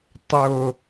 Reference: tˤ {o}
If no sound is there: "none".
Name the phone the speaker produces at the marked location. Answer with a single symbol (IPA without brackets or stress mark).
o